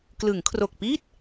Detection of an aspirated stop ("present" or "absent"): present